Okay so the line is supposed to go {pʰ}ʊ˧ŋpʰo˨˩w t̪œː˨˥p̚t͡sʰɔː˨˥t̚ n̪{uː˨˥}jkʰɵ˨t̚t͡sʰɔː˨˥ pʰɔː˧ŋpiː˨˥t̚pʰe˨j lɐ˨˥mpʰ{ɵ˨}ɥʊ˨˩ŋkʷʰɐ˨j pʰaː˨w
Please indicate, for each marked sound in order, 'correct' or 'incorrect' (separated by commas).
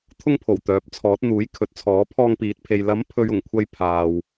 incorrect, correct, correct